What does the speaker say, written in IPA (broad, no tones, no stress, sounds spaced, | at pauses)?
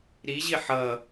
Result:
ɾ i ʑ i ħ ʌ